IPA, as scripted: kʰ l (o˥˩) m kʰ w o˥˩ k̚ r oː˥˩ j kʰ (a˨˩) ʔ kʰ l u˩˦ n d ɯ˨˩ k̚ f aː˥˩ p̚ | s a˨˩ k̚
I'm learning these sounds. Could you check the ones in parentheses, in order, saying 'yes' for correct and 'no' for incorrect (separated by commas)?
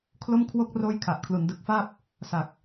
yes, yes